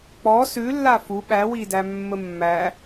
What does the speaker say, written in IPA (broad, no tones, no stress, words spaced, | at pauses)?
k͡pɔ sʉ lːafu ɓæwi dæmːəmːæ